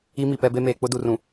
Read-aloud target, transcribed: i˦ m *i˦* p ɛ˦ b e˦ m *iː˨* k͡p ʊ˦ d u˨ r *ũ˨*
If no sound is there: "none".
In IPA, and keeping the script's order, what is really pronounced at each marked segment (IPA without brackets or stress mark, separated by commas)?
i˨, eː˨, ũ˨